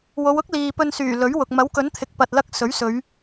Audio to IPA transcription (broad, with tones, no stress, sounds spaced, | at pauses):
w o˨˧ w ʊ˥ k̚ l iː˨ p ɵ˧ n s yː˨˩ l ɵ˨˥ ɥ w ʊ˨ k̚ m ɐ˨˥ w k ɵ˨˥ n t̪ʰ ɪ˨˥ k̚ p ɐ˧ t̚ l ɐ˥ k̚ s ɵ˨˥ ɥ s ɵ˨˧ ɥ